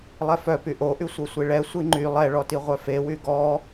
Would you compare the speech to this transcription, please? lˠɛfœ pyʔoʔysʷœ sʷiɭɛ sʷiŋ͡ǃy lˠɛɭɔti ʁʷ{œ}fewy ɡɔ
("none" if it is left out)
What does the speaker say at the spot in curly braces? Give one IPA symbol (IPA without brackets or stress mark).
œ